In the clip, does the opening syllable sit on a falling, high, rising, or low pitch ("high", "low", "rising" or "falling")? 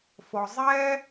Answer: low